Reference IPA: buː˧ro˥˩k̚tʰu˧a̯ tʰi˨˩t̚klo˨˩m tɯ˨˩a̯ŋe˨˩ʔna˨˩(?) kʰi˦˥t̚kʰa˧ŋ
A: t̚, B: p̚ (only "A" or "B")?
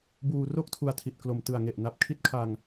B